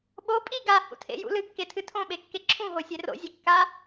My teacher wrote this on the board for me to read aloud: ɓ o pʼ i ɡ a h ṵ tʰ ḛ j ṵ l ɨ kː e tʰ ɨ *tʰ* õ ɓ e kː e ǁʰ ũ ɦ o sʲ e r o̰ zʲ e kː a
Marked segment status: correct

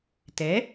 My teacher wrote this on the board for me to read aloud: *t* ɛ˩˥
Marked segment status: correct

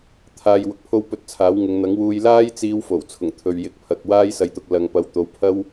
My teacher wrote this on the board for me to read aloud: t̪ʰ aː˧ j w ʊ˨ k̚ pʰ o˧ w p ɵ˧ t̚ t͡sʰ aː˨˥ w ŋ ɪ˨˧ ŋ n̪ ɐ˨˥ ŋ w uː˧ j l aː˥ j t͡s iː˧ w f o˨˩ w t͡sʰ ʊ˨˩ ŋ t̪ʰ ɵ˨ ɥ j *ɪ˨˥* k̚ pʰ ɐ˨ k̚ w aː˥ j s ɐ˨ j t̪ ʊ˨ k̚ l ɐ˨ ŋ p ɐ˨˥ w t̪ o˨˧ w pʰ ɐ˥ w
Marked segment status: correct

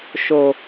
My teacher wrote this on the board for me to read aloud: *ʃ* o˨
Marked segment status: correct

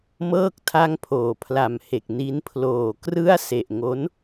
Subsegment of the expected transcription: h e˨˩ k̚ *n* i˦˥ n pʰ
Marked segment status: correct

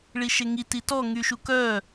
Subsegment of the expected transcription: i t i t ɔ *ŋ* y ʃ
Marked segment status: correct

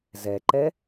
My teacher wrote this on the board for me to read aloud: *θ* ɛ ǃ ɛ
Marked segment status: incorrect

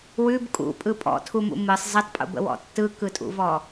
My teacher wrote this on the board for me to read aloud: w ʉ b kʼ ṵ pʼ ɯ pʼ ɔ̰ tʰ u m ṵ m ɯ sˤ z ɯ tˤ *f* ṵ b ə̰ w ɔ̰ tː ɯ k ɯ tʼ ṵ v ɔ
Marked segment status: incorrect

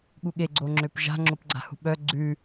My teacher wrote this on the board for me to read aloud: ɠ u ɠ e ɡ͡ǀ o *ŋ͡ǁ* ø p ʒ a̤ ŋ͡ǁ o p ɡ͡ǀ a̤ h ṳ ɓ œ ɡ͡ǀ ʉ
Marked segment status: correct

